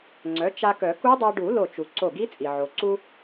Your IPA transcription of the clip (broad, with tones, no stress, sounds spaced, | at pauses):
ŋ͡ǀ œ˩˥ t͡ʃ a˧ k œ˨˩˦ k u˦˥ dˤ a˧ ɖ u˨˩˦ l o˧˩ t͡ʃ u˩ ǀ o˧˩ ɡ i˦˥ t͡sʼ i˩ ʕ o˩ ǀ u˧